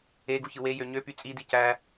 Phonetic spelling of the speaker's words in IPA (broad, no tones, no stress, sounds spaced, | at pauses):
e ɡ u ç ɯ w e j ø ɲ ø p y t͡sʼ i d i c æ